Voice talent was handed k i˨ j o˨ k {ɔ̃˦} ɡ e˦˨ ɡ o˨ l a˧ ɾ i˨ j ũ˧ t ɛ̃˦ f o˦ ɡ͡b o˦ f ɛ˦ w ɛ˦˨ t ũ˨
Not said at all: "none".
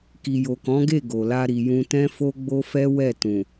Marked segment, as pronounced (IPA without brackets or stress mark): ɔ̃˨˦